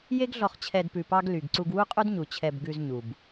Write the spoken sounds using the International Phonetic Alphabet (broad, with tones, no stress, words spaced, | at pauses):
je˦ɡɮɔ˧χt͡ɕʰɛ˧d pʉ˧pɑ˦ɡ ly˨ɡ ǀu˧ɡwu˦qʼu˦dɲu˨ t͡ɕʰɛ˧b ɡʉ˧z ɲu˨b